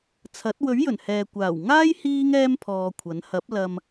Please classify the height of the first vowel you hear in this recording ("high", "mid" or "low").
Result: low